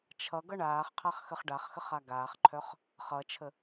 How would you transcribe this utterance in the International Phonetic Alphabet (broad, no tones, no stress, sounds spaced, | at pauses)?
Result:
t͡ʃʰ ʌ ɡ ʌ ɳ aː χ qʰ a χ x ə χ ɖ a χ x ə χ a ɡ aː χ ǃʰ œ χ | χ ʌ t͡ʃʰ ə